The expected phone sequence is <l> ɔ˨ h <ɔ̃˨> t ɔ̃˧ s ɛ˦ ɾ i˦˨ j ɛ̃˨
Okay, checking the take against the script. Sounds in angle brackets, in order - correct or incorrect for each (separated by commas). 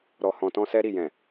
incorrect, correct